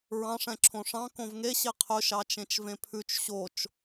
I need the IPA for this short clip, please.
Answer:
ɹ ɑ̃ ʂ ɛ̃ ǁʰ õ ʂ ɑ̃ k õ v ŋ e ɕ e qʰ ɵ ʃ ɑ t͡ʃ ẽ t͡ʃ v ẽ pʰ ʉ t͡ʃ ɕ o t͡ʃ

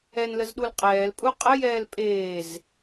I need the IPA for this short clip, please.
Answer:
ɛ n l ə z ɗ u l qʼ ɛː l pʼ u qʼ ə j ɛː l pʼ eː z

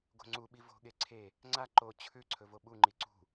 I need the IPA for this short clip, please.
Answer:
ɡ o̤ ŋ͡ǀ u ɓ i v o̤ ɠ e ǀʰ e | ŋ͡ǀ a ǃ o t͡ɕʰ ʉ ǀʰ ɵ v o ɓ u ŋ͡ǃ i ǀ ṳ

